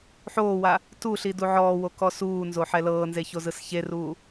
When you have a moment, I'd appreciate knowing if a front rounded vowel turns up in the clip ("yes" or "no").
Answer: no